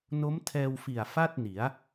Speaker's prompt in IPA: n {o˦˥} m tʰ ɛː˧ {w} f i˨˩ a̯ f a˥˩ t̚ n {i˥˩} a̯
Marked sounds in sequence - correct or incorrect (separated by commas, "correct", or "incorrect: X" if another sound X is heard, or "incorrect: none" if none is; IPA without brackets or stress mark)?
correct, correct, incorrect: i˩˦